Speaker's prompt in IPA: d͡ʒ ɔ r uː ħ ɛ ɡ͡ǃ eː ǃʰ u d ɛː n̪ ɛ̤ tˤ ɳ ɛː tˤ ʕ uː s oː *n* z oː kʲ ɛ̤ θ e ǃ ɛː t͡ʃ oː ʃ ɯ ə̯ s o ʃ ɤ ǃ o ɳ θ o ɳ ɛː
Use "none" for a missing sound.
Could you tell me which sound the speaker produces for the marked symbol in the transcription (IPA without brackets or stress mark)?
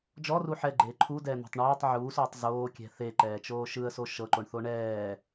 tˤ